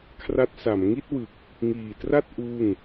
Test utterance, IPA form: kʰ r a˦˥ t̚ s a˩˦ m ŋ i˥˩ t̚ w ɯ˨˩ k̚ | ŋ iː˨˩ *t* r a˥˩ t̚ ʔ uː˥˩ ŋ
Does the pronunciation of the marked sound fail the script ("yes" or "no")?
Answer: no